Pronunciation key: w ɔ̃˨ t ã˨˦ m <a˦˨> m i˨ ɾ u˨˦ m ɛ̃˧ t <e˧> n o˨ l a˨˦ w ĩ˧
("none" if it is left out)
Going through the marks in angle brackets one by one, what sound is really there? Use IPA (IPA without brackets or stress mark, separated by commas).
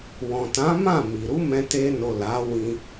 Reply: ã˦˨, e˧